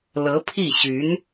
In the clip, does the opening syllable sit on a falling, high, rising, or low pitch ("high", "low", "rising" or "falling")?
rising